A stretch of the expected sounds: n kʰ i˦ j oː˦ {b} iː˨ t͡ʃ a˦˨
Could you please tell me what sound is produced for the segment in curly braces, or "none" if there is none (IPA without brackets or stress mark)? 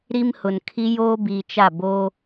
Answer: b